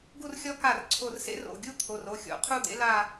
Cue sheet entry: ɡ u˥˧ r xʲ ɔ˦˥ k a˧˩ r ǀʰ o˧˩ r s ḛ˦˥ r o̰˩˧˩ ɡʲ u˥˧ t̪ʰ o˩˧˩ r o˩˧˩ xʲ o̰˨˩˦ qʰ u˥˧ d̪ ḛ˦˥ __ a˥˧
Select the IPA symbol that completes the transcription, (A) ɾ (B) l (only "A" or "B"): B